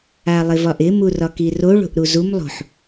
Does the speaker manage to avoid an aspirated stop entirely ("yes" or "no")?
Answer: yes